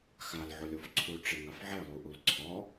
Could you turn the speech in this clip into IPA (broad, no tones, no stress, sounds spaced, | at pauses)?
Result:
x a l ʕ u lʲ o f ǀʰ u ʈ͡ʂ e ŋ a f ʕ e lˠ u ʔ u l ǀʰ ɔ